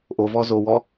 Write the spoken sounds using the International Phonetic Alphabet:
ʔ o v ɔ z o w ɔ

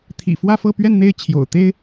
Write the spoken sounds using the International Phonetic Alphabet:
t̪ʰ ḭ˨˩ f w ä˥˧ f ɤ˥˧ p ɥ ɛ˥˧ n n̪ e˥˩ ɪ̯ t͡ɕʰ j o̰˨˩ ʊ̯ t̪ e˥ ɪ̯

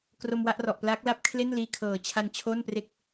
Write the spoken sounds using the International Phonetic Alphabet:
k r o˧ m w a˥˩ ʔ r ɔ˨˩ ʔ p l aː˦˥ k̚ l a˦˥ p̚ kʰ l e˥˩ n l iː˧ kʰ ɤː˨˩ t͡ɕʰ a˧ n t͡ɕʰ o˥˩ n p r e˥˩ k̚

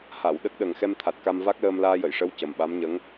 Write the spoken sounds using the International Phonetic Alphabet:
h a˨˩˨ w ɗ ə˦˥ k̚ ɗ ə˨˩ ŋ x ɛ˧ m t̪ʰ a˨˩ t̚ k a˧ m v a˦˥ k̚ l əː˧ m l aː˧ j ə˨˩˨ j ʂ ə˧˥ w c ə˨˩ m ɓ a˧˥ m ɲ ə˧˥ ŋ

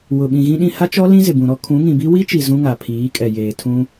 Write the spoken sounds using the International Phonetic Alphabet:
w ʊ˨ ɓ ĩ˨ ɣ ĩ˦ ɗ ĩ˦ h a˦ t͡ʃ ɔ˦ l ĩ˦ z ɪ˨ b ũ˨ ɾ ɔ˦ kʰ ũ˨˦ ŋ ĩ˨ b i˦ w i˦ t͡ʃ i˨ z ũ˦ ŋ a˨ pʰ iː˨˦ kʼ ɛ˨ j eː˨ tʰ ũ˦

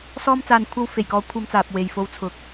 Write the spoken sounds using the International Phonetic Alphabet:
s ɔː˧ m t͡s aː˨ n kʷʰ ɐ˧ w f e˨˩ j k ɔː˨˧ kʷʰ ɐ˧ m t͡s aː˨ p̚ w e˨ j f o˧ w t͡sʰ ʊ˨ k̚

